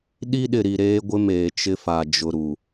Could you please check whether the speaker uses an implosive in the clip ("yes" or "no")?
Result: yes